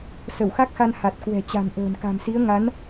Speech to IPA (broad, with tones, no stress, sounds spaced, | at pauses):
s ə˧˩ w x a˦˥ k̚ x a˧ n h a˨˩ t̚ k w ɛ̤˨˩ t͡ɕ a̤˨˩ n ʔ ə̤ː˨˩ n k a̤˨˩ m s i˨˦ ə̯ ŋ a˨˦ n